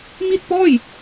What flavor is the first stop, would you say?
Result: plain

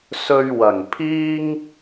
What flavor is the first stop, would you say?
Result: aspirated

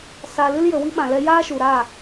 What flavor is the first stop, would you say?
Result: implosive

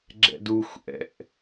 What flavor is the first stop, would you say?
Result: click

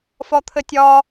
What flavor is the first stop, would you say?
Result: aspirated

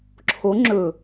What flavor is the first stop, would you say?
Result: click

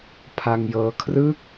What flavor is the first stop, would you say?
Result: aspirated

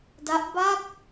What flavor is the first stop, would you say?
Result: plain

